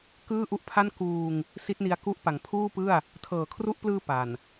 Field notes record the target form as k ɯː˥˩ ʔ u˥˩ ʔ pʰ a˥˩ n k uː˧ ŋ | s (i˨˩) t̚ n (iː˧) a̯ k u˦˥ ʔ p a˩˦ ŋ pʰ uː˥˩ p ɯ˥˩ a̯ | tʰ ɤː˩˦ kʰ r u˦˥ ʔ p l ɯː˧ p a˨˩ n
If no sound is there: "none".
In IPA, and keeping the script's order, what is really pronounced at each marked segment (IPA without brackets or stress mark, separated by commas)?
i˦˥, i˧